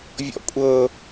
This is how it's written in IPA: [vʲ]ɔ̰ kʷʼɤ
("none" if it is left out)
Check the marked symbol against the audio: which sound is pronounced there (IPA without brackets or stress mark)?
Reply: vʲ